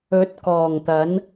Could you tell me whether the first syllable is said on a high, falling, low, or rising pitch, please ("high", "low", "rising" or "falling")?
rising